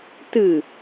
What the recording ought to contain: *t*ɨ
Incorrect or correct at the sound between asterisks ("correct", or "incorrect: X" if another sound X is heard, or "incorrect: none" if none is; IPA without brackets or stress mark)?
correct